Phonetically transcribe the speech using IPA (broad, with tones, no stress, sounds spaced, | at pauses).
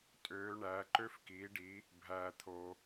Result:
tʼ øː˨˦ ɳ æː˨˦ ǃ ø˦ f k iː˨˦ ɖ i˨˦ | bʱ æː˨ t̪ʰ o˨